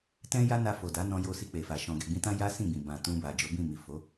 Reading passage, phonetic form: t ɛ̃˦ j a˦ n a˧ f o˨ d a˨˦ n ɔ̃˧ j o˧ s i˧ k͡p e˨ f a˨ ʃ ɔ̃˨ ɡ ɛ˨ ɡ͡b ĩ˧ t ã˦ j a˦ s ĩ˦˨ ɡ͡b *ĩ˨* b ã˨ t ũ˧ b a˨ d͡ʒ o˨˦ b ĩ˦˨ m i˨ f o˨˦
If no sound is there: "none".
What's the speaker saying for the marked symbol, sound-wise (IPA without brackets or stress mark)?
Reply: ĩ˨